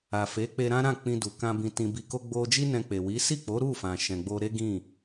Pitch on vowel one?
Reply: low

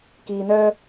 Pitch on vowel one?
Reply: low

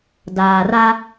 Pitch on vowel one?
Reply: low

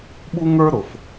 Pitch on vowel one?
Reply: high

